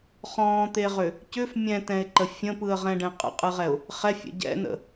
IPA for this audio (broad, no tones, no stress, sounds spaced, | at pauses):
χ ɔ̃ː t̪ e ʁ ʏ | c ʏ f mʲ ɛ̃ t ɛ̃ ɪ̯ ǃ ə fʲ ə̃ p ɯ ə̯ ʁ ɛ̃ ɖ ɛ̃ qʼ ə̰ qʼ ɯ ʁ ɛ ʊ̯ | χ ɛ fʲ ɛ̰ ɟ ɛ̰ n ə̰